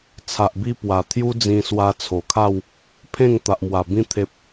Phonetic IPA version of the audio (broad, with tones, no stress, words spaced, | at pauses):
t͡sʰa˨ʔbi˧ pwa˨˩t̪ʰju˦d͡zĩ˧ swa˧t͡sʰo˨˩kʰa˥˧w | pʰẽ˥˧ŋ t̪a˨ʔmwa˨˩ bĩ˦ t̪ʰe˦p̚